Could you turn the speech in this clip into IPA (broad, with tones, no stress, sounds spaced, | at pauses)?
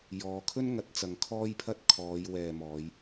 j ɔː˨˧ kʰ ɵ˥ n ŋ ɐ˨˥ t̚ t͡s ɐ˨˧ ŋ kʰ ɔː˥ j pʰ ɐ˥ t̚ kʰ ɔː˨˧ j w ɛː˨ m ɔː˨˧ j